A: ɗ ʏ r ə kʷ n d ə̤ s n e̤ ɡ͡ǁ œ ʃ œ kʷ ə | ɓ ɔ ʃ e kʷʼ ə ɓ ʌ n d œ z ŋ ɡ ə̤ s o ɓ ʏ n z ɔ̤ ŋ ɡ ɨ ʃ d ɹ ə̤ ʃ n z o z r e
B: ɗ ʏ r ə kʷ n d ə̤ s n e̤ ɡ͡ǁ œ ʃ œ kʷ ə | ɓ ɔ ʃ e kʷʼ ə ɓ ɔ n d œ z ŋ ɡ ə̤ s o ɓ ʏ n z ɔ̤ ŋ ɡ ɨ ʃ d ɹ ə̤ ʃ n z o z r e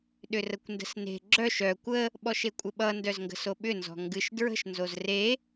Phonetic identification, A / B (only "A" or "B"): A